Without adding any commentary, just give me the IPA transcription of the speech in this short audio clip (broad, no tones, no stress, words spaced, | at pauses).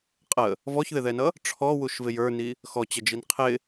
qʼə | vɔçðɪðɛnʌ | ʈ͡ʂʰɔwuʃvɪ jə˞ni | xɔt͡ɕəd͡ʒin qʰɪ